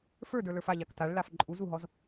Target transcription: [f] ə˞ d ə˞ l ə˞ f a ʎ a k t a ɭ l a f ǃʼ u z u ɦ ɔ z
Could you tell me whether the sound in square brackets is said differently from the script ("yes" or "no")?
no